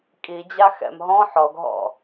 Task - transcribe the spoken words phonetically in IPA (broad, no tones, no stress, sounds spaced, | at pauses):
kʼ i d͡ʑ a x ɛ̰ m ɦ ɔ̃ ħ ɔ ɡ ɦ ɔ̰